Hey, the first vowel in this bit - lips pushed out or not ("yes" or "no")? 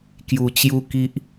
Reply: yes